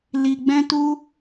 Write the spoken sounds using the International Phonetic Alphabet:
li˨ɡ͡bɛ̃˧tu˧

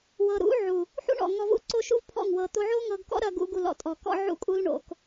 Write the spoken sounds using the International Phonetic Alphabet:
wɤ˨ɾṵ˨˦ʕu˨ | ħṵ˦ɳɔ̰˨ ŋɔ˧vṵ˦ǀo˦ ʃṵ˦vpʰɔ̰˦˨ŋ wɤ˧ t̪o˧ʕo˦ŋɤ˧ɡkɔ̰˦ ɾɐ˦ɡṵ˦ɡu˧ lɔ̰˨tʼɔ˨kɔ̰˦ ʕṵ˦kʼu˦lɳo̰˧k

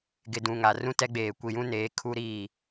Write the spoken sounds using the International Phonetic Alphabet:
ɡɪ˨dũ˨ ŋa˨ rũ˦ tɛ˦ɡ͡beː˨ kʷi˨jũ˦neː˨˦ kʰu˦ɾiː˦˨

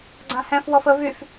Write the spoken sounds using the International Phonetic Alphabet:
ɡ͡ǀãhɛ̃f wɔfə vyf

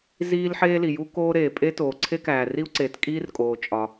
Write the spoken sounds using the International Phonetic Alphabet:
ziː˥lħeː˥li˩ ju˥koː˥ ɾeː˩ pʼe˥toː˩ ǀʰe˥kæː˩ri˥u̯ǀeː˩t kʼiː˥rkʼoː˩ t͡ʃʼɒ˩

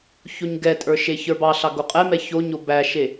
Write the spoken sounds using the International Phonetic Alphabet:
çoɲɡɛtʼə˞ ʃeçə˞bɑɬɑ ɡoqʼɛmɛ çoɲo bæʃe

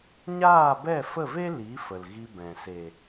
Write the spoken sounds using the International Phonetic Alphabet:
ɲaː˦˨bɛ˦˨fə˦˨ve˦ li˨˦ fə˨lɣi˧bɛ̃˨ se˨

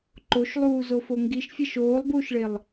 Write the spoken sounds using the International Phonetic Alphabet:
ǃoʃlˠuː zofoŋɡiʃfʲeʃ oːlˠbuːʃɭelˠ

